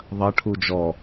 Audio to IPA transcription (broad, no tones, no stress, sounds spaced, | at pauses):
ðˤ ɐ ʈʰ u d͡ʒ ɔ